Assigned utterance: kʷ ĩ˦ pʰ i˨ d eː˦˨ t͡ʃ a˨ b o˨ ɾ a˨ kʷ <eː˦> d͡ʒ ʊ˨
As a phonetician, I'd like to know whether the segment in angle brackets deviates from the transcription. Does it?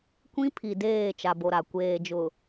yes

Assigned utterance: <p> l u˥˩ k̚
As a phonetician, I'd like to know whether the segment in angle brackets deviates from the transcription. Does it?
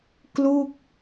yes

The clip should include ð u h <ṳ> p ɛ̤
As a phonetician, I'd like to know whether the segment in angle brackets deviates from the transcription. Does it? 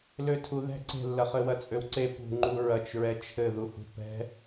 no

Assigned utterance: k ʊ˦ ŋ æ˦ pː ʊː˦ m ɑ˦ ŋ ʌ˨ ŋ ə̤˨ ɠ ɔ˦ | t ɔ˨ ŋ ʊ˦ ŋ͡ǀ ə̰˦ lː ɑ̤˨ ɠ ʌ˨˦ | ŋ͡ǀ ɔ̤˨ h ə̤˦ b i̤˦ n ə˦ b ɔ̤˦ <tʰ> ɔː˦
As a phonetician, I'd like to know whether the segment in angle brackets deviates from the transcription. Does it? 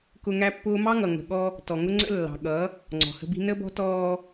yes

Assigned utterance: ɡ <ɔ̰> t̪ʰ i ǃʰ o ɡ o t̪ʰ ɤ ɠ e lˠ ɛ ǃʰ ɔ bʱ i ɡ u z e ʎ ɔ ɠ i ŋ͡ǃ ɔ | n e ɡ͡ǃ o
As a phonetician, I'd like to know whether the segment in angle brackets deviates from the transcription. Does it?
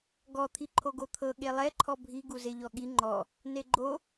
yes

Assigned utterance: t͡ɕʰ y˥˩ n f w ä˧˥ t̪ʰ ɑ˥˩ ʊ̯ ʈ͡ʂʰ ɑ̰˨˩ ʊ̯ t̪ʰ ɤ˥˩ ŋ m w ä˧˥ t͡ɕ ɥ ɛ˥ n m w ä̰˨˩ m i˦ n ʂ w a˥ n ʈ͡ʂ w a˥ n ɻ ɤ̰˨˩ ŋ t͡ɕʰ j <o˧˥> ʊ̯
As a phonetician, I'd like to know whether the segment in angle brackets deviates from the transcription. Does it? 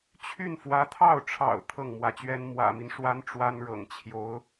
no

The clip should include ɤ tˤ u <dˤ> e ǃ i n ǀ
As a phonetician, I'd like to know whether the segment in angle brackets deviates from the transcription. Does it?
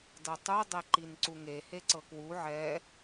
no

